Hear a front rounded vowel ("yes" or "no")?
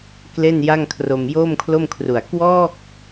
no